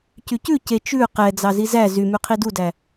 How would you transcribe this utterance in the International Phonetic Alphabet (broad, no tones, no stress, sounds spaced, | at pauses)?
c y c ʉ c e t͡ʃ ʉ q ɛ d͡z ɑ z i z æ z y m y qʰ i d u d æ